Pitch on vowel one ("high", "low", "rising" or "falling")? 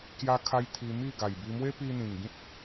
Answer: high